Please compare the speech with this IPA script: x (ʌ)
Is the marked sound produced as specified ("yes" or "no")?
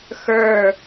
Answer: no